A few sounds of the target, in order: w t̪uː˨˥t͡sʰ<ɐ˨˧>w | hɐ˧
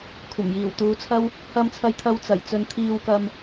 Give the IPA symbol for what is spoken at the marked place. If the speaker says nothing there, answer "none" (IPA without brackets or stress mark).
ɐ˥